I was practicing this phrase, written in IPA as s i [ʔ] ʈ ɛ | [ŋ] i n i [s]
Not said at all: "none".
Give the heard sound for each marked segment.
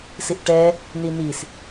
ʔ, n, s

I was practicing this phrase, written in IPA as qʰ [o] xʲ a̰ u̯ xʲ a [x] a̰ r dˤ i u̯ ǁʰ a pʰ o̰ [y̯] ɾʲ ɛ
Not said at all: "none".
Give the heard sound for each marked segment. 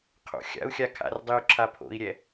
o̰, kʰ, i̯

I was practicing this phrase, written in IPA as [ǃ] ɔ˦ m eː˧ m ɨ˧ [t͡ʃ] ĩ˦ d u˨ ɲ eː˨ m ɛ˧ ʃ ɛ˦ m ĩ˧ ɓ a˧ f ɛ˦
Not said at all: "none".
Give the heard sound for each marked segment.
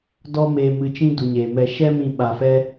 d, t͡ʃ

